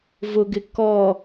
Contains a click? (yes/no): no